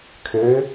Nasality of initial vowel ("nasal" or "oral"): oral